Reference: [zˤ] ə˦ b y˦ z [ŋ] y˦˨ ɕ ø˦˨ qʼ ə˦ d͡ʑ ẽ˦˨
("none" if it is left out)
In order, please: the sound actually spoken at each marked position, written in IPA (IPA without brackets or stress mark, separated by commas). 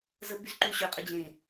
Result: z, ǃ